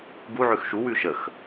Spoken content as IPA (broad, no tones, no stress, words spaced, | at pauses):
ɡuʕʉx ʃuwʉ ʃəx